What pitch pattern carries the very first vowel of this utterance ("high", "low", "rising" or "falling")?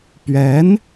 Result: rising